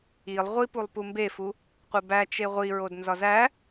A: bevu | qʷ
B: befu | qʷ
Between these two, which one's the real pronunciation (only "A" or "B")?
B